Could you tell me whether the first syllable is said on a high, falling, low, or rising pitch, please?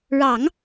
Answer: low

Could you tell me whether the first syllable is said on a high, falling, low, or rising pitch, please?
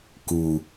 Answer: low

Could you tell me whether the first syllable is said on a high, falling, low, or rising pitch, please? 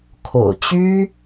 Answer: low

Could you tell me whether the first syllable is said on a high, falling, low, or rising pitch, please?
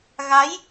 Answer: rising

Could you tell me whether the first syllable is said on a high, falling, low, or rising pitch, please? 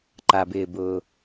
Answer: low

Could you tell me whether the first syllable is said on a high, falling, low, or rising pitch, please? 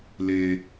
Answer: high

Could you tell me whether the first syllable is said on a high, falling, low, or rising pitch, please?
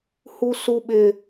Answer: high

